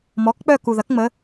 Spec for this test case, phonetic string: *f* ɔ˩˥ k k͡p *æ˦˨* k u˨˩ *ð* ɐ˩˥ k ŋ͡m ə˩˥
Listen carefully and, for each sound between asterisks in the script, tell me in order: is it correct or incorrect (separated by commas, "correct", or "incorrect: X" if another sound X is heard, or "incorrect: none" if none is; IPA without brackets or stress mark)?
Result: incorrect: m, incorrect: œ˦˨, correct